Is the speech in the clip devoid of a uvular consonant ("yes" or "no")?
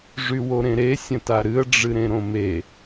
yes